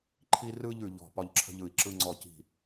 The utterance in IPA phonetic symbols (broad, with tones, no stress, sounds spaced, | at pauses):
ǃʰ i˧ r ɯ˧ ʎ ʉ˧ ʎ ɔ̤˧˩ p ɒ˧ ʎ ǁʰ ə̤˧ ʎ ɯ˧˩ i̯ ǁ ɯ˧ ŋ͡ǀ ɔ˧˩ c i̤˧˩